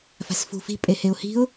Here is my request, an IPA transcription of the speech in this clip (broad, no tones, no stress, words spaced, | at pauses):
fa̤sfṳfi̤ pʼeheʊ̯hi̤ʊ̯